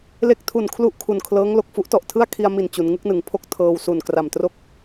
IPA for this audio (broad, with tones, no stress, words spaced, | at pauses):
le˦˥k̚tʰu˨˩n kʰlu˥˩ʔkʰu˨˩nkʰlɤː˦˥ŋ lo˨˩k̚fu˦˥ʔtɔ˨˩ʔtʰɯ˥˩a̯ kʰi˧a̯mi˨˩n t͡ɕu˩˦nŋɯ˦˥k̚nɯ˩˦ŋ pʰo˥˩k̚tʰɤː˧wsu˨˩n kra˨˩mtro˥˩k̚